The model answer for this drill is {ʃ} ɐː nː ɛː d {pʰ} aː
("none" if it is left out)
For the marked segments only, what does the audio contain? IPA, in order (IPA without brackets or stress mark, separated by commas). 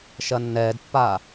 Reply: ʃ, pː